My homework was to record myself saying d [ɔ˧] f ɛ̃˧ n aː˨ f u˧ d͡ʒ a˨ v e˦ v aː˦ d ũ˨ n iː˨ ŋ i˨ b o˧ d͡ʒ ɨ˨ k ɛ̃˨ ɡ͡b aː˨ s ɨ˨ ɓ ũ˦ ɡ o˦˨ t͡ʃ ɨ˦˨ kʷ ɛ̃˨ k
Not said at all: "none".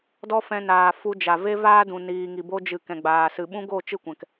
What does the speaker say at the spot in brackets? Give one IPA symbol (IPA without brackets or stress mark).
ɔ˦